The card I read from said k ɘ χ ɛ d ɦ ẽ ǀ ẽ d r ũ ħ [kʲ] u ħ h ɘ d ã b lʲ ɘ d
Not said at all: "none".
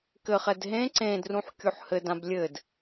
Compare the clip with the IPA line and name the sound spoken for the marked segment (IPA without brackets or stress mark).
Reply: kʲ